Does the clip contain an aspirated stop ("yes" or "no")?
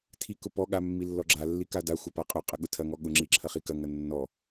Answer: yes